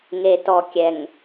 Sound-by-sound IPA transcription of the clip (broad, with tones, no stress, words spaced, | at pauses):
ŋe˨tɔ˨ kʲɛ˨ŋ